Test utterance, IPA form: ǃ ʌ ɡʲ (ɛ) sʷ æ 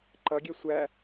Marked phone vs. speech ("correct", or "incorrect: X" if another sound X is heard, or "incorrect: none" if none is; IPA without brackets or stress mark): correct